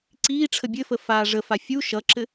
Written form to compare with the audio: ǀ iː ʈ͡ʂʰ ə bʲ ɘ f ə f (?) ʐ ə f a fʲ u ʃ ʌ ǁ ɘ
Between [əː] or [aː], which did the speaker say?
aː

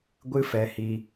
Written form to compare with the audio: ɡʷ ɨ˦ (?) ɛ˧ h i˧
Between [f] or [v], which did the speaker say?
f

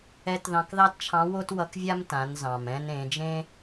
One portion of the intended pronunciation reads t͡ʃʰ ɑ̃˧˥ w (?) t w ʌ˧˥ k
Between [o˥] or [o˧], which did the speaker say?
o˥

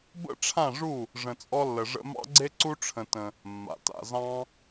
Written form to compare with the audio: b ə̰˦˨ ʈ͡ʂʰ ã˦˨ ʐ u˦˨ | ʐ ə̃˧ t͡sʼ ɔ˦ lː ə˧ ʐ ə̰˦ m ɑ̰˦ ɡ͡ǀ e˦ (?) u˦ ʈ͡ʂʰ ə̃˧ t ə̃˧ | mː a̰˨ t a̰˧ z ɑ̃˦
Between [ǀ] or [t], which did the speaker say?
ǀ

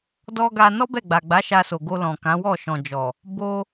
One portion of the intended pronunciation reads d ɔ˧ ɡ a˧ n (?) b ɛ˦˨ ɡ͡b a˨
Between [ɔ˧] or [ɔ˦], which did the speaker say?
ɔ˦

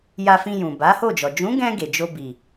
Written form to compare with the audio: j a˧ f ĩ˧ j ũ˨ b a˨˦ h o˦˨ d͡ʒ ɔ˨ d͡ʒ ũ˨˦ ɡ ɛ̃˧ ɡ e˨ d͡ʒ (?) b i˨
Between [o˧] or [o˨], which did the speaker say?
o˧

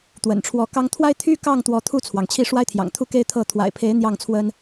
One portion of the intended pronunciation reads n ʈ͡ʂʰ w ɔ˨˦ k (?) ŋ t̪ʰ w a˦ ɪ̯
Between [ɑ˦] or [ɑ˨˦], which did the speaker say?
ɑ˦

